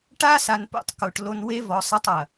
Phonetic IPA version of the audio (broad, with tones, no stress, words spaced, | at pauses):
ʈa˦sa˨npo̰˦tˤ ko˨ʈlo˦n we˦vɔ˨sˤɐ˦tˤ ɐ˨